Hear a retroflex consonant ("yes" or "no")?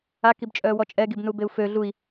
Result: no